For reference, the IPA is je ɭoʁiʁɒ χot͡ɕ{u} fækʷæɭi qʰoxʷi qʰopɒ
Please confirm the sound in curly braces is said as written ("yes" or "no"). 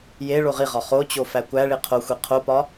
no